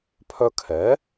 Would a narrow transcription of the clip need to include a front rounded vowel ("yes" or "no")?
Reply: yes